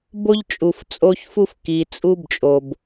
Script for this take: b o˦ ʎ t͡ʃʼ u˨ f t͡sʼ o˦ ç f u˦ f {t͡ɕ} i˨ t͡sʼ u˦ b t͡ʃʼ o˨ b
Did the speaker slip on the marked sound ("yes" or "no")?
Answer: yes